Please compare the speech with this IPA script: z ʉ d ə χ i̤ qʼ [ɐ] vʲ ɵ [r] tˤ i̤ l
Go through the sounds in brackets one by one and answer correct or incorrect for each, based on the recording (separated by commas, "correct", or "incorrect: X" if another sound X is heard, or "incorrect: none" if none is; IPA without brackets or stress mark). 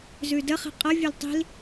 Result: correct, incorrect: l